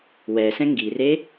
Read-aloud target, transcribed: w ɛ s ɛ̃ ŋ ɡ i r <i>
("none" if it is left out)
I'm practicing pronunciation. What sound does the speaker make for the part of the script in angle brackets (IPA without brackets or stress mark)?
e